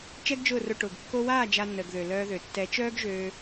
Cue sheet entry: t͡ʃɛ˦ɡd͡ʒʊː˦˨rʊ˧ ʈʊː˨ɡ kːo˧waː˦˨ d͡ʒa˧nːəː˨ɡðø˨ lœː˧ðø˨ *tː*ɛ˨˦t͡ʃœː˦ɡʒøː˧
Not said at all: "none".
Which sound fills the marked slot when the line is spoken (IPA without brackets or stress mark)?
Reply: tː